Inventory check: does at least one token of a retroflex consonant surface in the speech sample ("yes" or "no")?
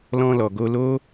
no